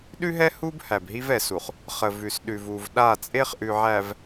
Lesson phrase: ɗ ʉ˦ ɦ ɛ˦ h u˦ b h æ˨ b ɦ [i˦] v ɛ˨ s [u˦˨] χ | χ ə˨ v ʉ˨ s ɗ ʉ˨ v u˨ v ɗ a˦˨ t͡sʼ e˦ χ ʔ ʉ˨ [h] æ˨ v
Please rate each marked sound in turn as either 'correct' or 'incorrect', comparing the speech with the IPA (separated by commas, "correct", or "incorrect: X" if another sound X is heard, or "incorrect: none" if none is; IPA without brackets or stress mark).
correct, incorrect: u˨, incorrect: ʕ